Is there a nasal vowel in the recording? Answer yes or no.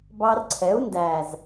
no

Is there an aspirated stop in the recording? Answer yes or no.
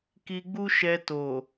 no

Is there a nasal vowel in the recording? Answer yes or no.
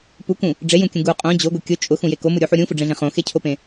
yes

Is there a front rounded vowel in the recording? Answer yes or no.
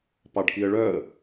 yes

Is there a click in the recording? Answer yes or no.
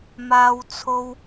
no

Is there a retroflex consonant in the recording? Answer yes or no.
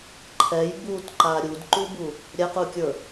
no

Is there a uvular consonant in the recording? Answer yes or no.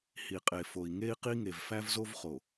yes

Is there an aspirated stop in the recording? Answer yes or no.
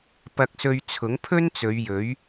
yes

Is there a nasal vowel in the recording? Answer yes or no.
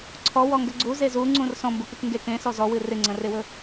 yes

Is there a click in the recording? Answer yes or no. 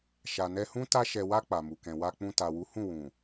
no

